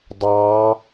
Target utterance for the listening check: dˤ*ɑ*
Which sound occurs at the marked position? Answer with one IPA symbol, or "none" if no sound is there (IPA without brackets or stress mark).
ɑ